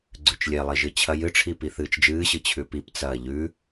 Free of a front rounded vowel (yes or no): yes